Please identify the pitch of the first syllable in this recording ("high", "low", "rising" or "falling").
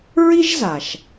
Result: high